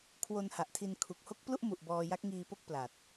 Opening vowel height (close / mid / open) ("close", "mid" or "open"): mid